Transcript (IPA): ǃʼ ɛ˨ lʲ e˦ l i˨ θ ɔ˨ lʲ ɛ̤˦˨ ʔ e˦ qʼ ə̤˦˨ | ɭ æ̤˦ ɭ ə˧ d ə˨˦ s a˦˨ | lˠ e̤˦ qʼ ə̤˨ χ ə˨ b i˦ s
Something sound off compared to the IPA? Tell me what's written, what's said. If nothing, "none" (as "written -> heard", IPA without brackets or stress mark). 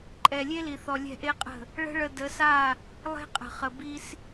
æ̤˦ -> ə̤˦